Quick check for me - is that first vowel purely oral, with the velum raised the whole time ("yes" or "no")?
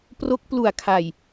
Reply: yes